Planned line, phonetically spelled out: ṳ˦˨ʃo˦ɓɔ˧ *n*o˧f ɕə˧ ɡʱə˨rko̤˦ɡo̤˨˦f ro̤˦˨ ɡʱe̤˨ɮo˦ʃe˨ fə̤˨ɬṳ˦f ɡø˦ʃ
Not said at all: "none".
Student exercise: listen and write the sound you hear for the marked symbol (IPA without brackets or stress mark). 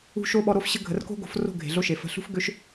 ɾ